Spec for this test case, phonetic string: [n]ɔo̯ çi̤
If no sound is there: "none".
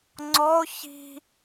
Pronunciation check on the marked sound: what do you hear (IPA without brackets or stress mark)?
ŋ͡ǀ